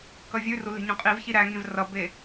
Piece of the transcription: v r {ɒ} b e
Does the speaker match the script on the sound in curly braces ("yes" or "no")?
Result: no